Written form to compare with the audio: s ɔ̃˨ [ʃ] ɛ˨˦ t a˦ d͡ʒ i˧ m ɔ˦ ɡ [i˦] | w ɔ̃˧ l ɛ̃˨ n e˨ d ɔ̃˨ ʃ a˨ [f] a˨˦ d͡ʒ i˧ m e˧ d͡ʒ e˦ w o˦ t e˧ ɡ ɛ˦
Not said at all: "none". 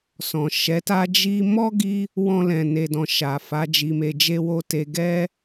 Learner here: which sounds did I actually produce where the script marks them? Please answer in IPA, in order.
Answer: ʃ, i˦, f

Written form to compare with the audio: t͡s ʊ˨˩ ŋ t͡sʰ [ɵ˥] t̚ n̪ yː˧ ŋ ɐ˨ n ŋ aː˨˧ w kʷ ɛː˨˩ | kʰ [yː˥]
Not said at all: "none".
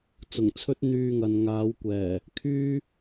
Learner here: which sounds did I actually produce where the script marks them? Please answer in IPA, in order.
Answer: ɵ˥, yː˥

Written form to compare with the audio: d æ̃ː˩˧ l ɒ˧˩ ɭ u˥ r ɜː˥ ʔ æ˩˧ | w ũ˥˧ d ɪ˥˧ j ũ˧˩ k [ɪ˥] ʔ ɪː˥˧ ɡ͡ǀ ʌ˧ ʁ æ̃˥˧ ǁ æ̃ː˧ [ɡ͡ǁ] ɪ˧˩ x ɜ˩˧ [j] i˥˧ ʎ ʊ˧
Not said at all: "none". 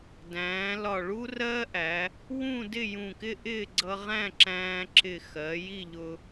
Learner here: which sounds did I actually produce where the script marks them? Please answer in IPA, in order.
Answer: ɪ˥, ǁ, j

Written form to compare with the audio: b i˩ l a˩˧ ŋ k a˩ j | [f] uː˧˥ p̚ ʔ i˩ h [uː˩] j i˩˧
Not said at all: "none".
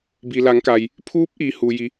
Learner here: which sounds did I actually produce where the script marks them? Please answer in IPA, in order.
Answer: pʰ, uː˩

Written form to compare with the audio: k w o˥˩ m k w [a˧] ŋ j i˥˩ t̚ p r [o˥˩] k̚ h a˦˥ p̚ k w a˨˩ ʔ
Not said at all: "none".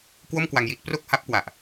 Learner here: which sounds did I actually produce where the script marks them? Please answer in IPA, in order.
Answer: a˧, o˥˩

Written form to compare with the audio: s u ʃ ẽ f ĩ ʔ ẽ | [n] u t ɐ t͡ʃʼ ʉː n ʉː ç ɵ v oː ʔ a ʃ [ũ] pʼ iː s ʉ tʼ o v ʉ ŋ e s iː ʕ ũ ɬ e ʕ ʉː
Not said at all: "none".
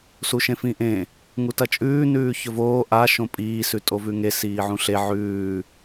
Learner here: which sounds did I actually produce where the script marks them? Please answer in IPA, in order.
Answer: ŋ, õ

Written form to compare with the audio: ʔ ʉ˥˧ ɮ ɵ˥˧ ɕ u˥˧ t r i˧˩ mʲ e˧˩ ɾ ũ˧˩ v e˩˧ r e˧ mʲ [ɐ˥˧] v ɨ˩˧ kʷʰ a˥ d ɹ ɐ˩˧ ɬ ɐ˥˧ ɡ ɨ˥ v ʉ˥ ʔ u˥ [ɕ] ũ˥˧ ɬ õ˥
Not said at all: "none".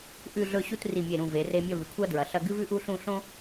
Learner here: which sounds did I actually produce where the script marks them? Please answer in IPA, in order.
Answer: ɐ˥˧, ɬ

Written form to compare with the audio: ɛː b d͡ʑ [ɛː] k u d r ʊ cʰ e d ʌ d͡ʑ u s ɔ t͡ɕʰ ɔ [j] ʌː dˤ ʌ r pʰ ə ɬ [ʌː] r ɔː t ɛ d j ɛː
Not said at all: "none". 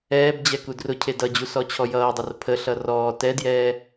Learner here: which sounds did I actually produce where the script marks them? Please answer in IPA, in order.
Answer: ɛ, j, ʌ

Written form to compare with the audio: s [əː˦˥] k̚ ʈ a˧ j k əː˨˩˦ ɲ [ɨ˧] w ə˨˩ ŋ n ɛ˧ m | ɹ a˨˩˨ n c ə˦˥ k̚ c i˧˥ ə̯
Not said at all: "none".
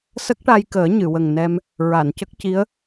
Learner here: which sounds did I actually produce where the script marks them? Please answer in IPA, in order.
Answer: ə˦˥, ɨ˨˩˨

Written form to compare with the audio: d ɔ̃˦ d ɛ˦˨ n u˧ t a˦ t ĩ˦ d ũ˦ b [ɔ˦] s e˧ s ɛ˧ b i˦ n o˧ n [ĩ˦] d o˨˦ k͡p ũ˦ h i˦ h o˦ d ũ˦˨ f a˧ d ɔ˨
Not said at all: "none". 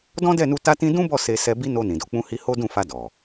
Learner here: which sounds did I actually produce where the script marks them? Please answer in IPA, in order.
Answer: ɔ˦˨, ĩ˨

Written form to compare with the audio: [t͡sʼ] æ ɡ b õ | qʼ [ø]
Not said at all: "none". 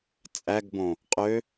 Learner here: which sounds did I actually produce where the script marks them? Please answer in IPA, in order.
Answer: t͡sʼ, ø

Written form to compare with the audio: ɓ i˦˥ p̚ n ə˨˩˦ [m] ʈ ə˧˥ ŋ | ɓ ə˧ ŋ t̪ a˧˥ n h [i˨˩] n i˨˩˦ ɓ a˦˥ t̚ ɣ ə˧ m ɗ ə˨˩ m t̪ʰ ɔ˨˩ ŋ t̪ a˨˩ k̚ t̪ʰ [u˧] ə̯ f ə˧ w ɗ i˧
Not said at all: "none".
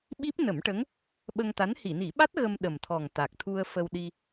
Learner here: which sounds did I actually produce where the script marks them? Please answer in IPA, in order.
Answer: m, i˨˩˨, u˧

